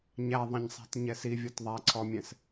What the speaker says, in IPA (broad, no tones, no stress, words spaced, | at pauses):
ɲæðˤĩɲsˤæ̤t ɲɛsivʲɔt ðˤæǀʰɔmʲɛ̃s